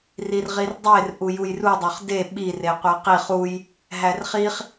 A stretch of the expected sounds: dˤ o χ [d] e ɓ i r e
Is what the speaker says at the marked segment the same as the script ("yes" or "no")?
yes